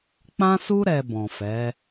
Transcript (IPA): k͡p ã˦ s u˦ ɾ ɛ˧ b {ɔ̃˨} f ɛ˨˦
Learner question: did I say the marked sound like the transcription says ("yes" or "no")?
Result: yes